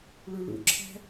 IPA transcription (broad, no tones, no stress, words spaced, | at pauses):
ɭuɭṵǁʰæ̤